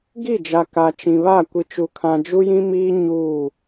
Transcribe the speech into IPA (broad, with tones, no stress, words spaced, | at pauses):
ɡi˦˨d͡ʒa˨ ka˨t͡ʃĩ˨βa˦˨ kʷi˨t͡ʃu˨kʰã˨ d͡ʒu˦jĩ˦miː˦ ɲuː˦˨